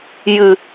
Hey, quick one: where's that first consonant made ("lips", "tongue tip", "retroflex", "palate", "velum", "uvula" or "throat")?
palate